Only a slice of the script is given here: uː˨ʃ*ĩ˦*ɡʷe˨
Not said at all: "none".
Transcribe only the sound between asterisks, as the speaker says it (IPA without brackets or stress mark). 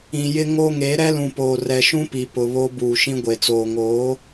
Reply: ĩ˦